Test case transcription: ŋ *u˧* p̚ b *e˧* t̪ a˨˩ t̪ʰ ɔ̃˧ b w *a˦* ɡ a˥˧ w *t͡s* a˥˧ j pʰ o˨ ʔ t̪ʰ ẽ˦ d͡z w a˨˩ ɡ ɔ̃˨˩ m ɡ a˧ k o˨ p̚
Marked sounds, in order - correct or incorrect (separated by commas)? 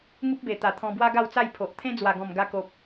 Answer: incorrect, incorrect, correct, correct